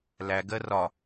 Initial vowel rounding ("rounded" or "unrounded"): unrounded